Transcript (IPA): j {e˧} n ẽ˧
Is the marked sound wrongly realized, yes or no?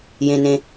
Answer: yes